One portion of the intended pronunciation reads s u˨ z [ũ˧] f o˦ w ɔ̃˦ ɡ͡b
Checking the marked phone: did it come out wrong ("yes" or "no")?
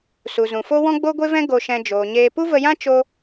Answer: yes